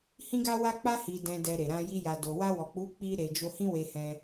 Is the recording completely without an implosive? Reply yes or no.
yes